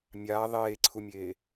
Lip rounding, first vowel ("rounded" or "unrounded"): unrounded